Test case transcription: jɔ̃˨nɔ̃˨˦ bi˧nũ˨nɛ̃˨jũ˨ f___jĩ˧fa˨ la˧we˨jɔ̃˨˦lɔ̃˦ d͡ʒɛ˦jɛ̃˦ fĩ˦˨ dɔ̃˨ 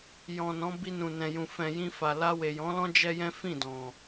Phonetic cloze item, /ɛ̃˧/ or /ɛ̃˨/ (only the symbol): ɛ̃˨